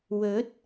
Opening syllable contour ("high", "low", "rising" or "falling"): rising